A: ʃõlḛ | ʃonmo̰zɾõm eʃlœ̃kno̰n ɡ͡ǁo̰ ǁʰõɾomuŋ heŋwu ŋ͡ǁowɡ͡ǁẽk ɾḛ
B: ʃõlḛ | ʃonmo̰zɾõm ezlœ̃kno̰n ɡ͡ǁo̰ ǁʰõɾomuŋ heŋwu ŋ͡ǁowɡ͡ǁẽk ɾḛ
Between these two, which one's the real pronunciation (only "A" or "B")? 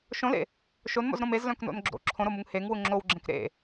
B